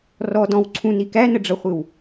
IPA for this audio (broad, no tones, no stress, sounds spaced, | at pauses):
r ɔ d ɔ̃ w ǀʰ ũ n i k æ n ə ɖ͡ʐ ʌ χʷ ɪ w